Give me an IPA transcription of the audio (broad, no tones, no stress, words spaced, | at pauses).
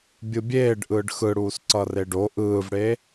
bʲɯbʲeːɖ ʔɯːɖxɯɽuːs ǀʌreɖo ʔɯːvɽeː